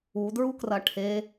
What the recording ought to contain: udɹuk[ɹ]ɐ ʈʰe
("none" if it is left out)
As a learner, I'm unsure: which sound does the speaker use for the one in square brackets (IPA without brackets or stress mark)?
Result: r